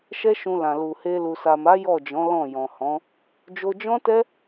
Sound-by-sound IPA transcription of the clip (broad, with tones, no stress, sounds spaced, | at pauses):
ʃ ɛ˦ ʃ ũ˧ l ã˨ l u˨ h e˧ l u˨ s a˨ m a˨˦ j ɔ˦˨ d͡ʒ ɔ̃˨˦ l ɔ̃˦˨ j ɔ̃˨ h ɔ̃˨˦ | d͡ʒ o˧ d͡ʒ ɔ̃˦ t ɛ˦